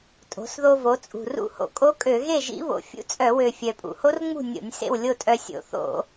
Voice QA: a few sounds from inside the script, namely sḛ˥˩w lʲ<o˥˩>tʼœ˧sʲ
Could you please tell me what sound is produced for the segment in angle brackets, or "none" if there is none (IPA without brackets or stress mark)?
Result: o˥˩